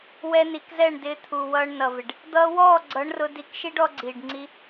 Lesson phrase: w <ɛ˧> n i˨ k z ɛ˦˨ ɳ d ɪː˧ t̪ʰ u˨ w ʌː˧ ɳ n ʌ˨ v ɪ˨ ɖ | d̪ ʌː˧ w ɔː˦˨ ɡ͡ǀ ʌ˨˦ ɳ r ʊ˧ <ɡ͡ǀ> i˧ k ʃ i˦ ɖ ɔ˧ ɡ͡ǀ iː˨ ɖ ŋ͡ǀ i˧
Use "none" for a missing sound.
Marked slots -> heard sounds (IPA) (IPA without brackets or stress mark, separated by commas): ɛ˧, d